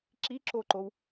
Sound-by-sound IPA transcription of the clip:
ǁ i ǁ o ǃ o w

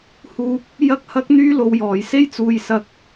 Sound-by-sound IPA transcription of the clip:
h uː˨ k̚ | j ɐ˥ k̚ h ɐ˥ k̚ n̪ yː˥ l o˨ w j ɔː˨˩ j s e˥ j t͡s uː˨ j s ɐ˨ k̚

